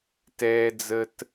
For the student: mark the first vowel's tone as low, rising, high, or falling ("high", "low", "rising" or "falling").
high